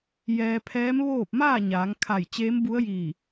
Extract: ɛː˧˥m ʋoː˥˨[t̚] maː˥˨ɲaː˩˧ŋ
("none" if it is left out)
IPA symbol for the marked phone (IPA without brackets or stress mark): p̚